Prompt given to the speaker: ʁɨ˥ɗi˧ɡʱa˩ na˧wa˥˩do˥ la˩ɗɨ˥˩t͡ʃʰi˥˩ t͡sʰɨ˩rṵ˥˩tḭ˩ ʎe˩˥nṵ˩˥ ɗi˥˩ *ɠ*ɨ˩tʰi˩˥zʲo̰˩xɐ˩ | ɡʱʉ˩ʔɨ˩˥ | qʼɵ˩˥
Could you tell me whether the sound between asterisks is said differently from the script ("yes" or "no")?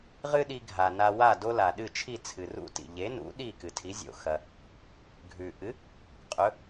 yes